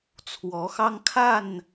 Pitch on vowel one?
rising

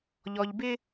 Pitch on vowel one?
low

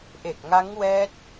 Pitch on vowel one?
low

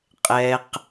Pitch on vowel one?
low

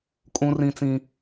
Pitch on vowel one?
high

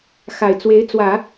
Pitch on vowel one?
low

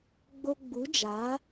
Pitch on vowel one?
high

